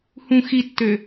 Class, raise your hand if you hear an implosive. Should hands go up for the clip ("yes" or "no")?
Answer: no